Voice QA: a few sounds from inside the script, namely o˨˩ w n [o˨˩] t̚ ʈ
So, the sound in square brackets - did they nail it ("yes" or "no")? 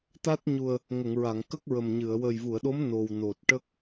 yes